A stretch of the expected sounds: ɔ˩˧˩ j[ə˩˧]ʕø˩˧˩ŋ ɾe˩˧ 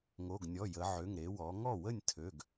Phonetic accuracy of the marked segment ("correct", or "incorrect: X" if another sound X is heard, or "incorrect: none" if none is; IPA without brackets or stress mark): correct